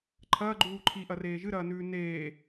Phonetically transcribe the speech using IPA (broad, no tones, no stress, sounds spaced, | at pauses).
ǃʰ ɐː ɡ͡ǃ uː ǃʰ i ʔ ɐ r eː ʒ ɨ ɾ ɐː n ʉː n eː